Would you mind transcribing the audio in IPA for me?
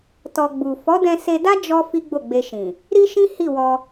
t ɔ˧ ɡ͡b u˨ f ɔ˨˦ d ɛ̃˧ s e˧ d a˦ d͡ʒ ɔ˦ f i˦ ɡ͡b o˦˨ ɡ͡b e˧ ʃ ĩ˨ | ɾ i˦ ʃ ĩ˦ h i˦˨ w ɔ˧

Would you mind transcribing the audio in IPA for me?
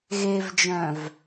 ɣ e v d͡ʒ œ̃ v

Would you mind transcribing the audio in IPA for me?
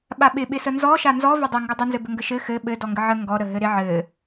ɓ a ɓ ɪ ɓ ɪ s ə n z ɔ ʃ a n z ɔ v ɘ dˤ ɪ ŋ ɡ ə dˤ ə n z ɘ b ɘ ŋ ɡ ə ʃ ɘ x ɘ ɓ ɘ d ɔ ŋ ɡ ə ʕ ə ŋ ɡ ɔ ɾ ə ɦ ɘ ɾ ɪ ʕ ɘ

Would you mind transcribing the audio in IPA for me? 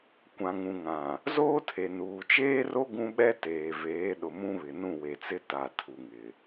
kʷ ã˨ ŋ ũ˨ ŋ ã˨ | z oː˦ tʰ e˨ n uː˨ t͡ʃ eː˦ r o˦ ɡ ũ˦ ɓ ɛ˦ t eː˨ v eː˨˦ ɗ ʊ˨ m ũ˦ β ɪ˨ n ũ˦˨ w e˨ t͡s ɪ˦ t a˨ tʰ u˨ ŋ ɪ˨

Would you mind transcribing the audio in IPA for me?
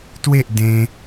t w e ʔ d ẽ

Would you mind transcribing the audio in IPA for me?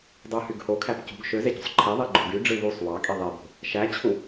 dˤ ɯ h y ɡ h o kʰ æ p c ṳ ɡ ʃ ø z e ɟ o̤ sˤ ǃʰ i ðˤ i ɡ͡ǃ o̤ ɡ y ɖ͡ʐ ɯ β u sˤ w ɑ kʼ i ðˤ e b o̤ | ʃ æ t͡ɕʰ u

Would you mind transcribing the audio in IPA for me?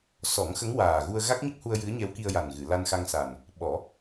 s ɔ˨˩˦ ŋ x ə˧˥ ŋ w aː˨˩ ɣ u˧ ə̯ ɣ a˦˥ k̚ ɲ ə˦˥ k̚ h u˧ ə̯ j ɨ˧˥ ə̯ ɲ ɛ˧˥ w k i˧ ə̯ j a˨˩ n ɣ ɨ˨˩˨ l a˧ n x a˧ ŋ s a˨˩ n | ɓ ɔ˨˩˦

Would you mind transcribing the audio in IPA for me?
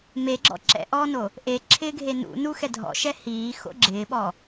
m e ɡ͡ǁ ɔ̰ ǁ ɛ̰ ʔ ɔː n o | ʔ e ǁʰ ɪː ɡʱ e n ṵ n u x ɛ dʱ ɔ̰ ʃ ɛ h iː x o̰ ɡ͡ǁ ɪː ɓ ɔ

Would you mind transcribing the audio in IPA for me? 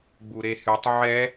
ɡ͡b u ɾ e h y tˤ ʕ ɛ

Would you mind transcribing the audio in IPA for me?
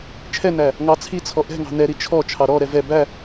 t͡ʃʰ ɛ n æ | ŋ ɑ t͡sʰ i t͡sʰ ɔ ʔ ɛ̤ ŋ ɑ̤ n ɛ ɾ i t͡ʃʰ ɔ t͡ʃʰ ɑ ɾ ɔ ɾ ɛ v ɛ b æ

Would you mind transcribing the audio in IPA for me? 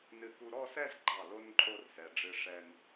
n ɨ˧˩ k u˧ ɾ ɔ˥˧ s ɛ˥˧ z ɡ͡ǃ ɑ˧˩ l o˥ n ǃʼ o˥˧ r s ɛ˩˧ ɖ͡ʐ ɨ˧ ʂ ɛ˧ n

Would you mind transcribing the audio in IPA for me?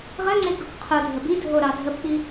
ʁ ə ŋ͡ǀ e ɡ ɾ o k qʰ o dʱ ə b i dʱ o ɾ ɑ dʱ ə p ɓ i

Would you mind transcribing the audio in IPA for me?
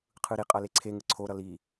qʰ ɯ ɾ i qʼ ʌ l e ǀʰ e ŋ ɯ ǀʰ o ɾ ʌ l i

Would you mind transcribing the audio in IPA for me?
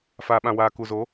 f aː˨ ɓ ã˨ w aː˨ k u˨ z o˨˦

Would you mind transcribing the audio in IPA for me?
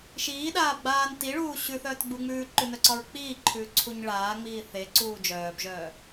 ʃ iː ɗ aː b ɡ͡b aː n t i ɭ uː ɕ ʉ θ œː t ɡ͡b u ŋ͡m ʉː ǃ ʉ n œ ǀ ɒ ɹ k͡p iː ǃʰ ʉː ǀʰ u ɲ ɭ aː ŋ͡m iː θ e ǀ uː d͡ʒ œː b ʒ œː

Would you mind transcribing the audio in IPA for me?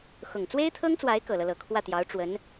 x ʊ˨˩ ŋ t͡s w e˥ ɪ̯ t̪ʰ ɤ˥ ŋ t͡s w a˧˥ ɪ̯ k ɤ˨˩ l ɤ˦ l ɤ˨˩ kʰ w ä˥˩ t̪ j ɑ˧˥ ʊ̯ ʈ͡ʂ w ə˧˥ n

